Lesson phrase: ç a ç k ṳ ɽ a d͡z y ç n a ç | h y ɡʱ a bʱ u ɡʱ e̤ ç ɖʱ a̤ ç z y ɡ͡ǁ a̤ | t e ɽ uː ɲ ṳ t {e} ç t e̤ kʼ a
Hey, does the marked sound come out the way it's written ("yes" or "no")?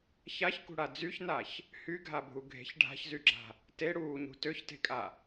no